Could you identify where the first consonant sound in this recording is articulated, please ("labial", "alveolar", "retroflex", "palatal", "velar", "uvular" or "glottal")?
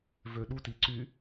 labial